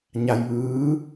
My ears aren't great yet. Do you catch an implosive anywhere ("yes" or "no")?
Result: no